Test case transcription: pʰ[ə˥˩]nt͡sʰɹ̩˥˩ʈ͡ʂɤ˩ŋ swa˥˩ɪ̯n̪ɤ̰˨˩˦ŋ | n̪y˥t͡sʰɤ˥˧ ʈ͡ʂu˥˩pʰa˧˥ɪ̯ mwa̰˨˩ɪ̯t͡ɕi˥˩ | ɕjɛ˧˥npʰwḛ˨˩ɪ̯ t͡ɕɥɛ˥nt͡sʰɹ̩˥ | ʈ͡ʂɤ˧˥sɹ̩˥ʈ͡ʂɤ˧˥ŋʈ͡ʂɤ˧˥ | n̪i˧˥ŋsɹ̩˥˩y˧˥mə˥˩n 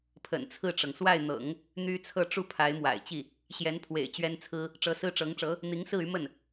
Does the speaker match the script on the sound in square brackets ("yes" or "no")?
no